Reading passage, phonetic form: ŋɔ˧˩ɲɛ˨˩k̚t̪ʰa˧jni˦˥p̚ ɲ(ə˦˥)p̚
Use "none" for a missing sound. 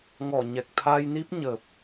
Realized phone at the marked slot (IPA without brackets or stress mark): ə˨˩